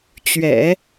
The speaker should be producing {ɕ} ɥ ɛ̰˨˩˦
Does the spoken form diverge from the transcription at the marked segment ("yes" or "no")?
yes